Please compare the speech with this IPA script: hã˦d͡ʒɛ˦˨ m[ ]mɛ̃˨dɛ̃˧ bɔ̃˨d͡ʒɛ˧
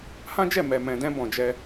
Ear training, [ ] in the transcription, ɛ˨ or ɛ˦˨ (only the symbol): ɛ˨